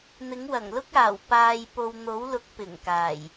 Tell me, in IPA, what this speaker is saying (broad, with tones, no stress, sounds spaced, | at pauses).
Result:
n̪ ɪ˨˥ ŋ w ɐ˨˩ ŋ l ʊ˥ k̚ aː˨˩ w p aː˧ j p o˧ w n̪ o˨˥ w l ʊ˨˥ k̚ p ɪ˨˩ ŋ k aː˨˩ j